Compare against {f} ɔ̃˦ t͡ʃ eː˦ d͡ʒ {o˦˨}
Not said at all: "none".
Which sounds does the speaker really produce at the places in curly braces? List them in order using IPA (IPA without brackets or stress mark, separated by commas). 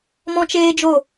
m, o˦˨